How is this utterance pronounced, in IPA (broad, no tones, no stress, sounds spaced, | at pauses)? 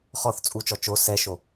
χ ɔ θ t͡sʼ u t͡ʃ ɔ t͡ʃ o s ɛ ʃ o